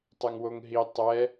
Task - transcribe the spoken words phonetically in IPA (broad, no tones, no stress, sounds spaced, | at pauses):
tˤ ɛ ŋ w o ŋ ɦ i tˤ ɛ